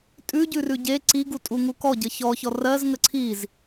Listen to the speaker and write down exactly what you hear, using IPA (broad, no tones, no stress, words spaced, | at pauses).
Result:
tʼʉɟʉrʉ ɟe ǀiɡutʼuŋu kɔɟə çɔçɔ rɜzŋə ǀʰiz